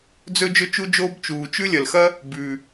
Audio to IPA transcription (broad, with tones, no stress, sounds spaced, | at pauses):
d͡z ɵ˥ d͡ʒ ɵ˥ t͡ʃ u˥ d͡ʒ oː˥ b t͡ʃ uː˩ t͡ʃ ʉ˥ lʲ ɐ˩ l x ɐ˥ | b ʉ˩